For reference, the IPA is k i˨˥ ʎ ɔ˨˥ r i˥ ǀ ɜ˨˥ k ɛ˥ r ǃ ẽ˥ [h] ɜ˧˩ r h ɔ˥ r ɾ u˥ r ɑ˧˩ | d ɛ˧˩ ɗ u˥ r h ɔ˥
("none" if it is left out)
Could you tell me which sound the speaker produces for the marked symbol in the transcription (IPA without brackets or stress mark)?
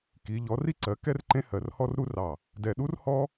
h